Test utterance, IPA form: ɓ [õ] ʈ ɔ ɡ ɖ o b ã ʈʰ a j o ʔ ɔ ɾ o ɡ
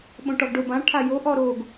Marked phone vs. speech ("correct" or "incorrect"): correct